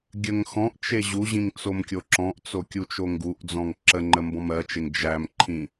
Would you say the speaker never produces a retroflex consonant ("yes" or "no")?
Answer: yes